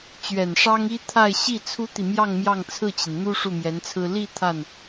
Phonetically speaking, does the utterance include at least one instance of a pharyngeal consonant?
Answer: no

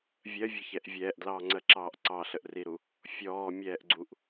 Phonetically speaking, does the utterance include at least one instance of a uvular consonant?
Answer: no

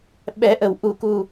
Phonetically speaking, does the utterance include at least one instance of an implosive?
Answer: yes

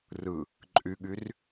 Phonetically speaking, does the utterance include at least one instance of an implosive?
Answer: yes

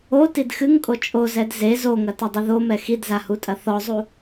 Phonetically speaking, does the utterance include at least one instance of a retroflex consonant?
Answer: no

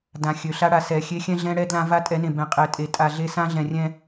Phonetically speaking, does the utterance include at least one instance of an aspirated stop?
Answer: no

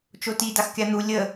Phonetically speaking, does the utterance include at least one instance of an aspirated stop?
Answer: no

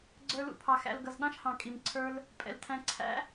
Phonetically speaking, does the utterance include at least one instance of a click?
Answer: yes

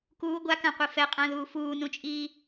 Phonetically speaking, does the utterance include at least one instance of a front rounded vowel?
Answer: no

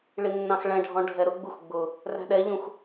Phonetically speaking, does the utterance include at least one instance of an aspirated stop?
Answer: no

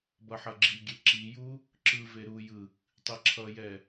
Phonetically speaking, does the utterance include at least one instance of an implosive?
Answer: no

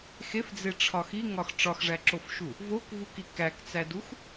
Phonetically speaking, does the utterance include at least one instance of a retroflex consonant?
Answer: yes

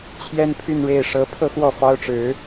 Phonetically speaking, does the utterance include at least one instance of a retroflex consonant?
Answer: yes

